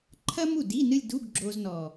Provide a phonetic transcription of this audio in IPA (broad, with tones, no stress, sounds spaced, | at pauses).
ǃʰ ɐ˥ m u˥˩ d i˧˥˧ n ɨ˥˧ lʲ d u˧˥˧ ɡ ɡ͡ǁ o˧ z n ɔ˨˩